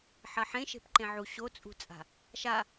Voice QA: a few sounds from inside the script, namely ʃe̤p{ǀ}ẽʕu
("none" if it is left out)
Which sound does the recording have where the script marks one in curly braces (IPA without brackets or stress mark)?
ǃ